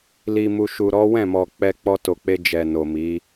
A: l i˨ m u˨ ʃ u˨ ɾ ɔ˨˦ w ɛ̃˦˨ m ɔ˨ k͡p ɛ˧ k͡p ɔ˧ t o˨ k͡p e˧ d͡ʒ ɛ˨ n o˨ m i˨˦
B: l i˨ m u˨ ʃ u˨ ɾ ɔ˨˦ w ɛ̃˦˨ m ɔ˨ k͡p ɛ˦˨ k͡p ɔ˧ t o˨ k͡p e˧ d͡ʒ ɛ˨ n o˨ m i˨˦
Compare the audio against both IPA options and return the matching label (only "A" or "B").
A